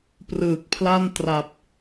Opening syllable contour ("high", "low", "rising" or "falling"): low